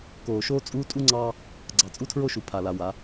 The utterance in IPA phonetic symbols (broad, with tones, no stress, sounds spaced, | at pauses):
k oː˨ ʃ oː˦ t͡sʼ uː˦ tʼ u˦ ŋ͡ǀ ɑː˦ | ɡ͡ǀ ɑ˨ t͡sʼ u˦ tʰ ɹ o˦ ʃ u˨ pʰ a˨ l a˨ w a˨˦